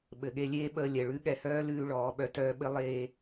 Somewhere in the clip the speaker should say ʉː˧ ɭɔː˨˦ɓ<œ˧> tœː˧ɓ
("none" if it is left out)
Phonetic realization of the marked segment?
œ˧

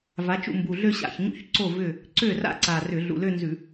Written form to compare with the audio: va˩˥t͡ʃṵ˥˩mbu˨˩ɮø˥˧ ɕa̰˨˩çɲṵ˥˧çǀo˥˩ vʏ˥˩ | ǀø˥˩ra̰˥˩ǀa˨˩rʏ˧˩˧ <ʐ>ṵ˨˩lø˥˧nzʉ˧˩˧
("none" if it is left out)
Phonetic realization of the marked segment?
ɮ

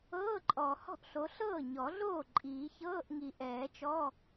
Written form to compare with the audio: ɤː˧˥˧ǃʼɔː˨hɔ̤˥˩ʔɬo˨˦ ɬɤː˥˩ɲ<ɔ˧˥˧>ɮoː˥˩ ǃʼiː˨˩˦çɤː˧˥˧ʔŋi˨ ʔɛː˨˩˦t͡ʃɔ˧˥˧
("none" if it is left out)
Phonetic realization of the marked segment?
ɔ˨˩˦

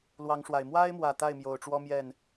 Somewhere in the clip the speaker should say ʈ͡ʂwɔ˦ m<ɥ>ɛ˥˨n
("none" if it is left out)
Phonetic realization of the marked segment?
j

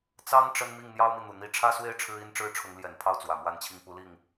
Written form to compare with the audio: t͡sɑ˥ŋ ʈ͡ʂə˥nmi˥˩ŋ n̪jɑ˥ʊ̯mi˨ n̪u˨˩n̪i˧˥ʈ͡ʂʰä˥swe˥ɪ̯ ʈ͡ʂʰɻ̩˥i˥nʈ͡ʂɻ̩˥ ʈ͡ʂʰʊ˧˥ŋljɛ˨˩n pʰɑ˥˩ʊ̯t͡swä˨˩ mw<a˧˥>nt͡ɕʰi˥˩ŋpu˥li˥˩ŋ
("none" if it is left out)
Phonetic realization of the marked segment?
a˥˧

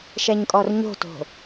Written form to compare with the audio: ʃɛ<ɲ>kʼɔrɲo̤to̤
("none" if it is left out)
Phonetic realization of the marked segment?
ɲ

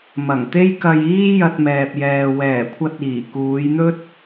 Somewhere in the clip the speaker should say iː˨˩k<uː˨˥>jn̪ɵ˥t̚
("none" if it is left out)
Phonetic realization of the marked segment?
uː˨˧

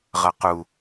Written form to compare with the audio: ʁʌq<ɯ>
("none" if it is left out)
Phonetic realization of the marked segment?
u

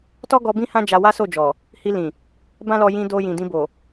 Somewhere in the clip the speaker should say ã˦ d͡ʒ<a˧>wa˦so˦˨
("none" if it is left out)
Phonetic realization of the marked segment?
a˧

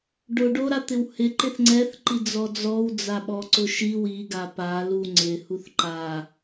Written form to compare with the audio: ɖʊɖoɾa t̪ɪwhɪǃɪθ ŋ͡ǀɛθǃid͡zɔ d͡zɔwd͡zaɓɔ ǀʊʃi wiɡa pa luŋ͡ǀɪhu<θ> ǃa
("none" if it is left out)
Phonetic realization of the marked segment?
θ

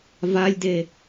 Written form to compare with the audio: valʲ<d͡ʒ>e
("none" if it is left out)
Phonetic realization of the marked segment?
d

